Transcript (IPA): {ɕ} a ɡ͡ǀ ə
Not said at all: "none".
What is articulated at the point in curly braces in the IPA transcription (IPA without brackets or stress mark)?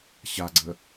ɕ